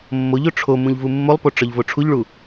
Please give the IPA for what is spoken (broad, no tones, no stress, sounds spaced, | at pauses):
mː o ʎ o ʈ͡ʂʰ o m ũ ʎ v u mː o lˠ p o ʈ͡ʂ ɒ ʎ v o ʈ͡ʂʰ u ʎ ɭ u